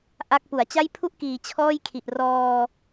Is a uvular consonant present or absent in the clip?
absent